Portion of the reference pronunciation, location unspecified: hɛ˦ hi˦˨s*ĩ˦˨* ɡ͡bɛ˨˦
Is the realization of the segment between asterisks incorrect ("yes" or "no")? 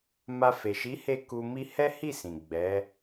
yes